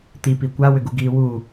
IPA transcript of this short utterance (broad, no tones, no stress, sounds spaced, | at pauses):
t̪ i p i kʷ a w ʏ ɡ u ɡ iː w uː